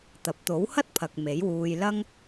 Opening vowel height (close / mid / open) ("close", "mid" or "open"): open